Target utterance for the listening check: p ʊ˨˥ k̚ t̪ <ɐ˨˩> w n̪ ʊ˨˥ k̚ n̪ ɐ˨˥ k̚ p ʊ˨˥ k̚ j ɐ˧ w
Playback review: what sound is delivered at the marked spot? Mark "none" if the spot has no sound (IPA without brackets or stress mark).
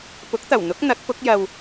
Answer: ɐ˨˩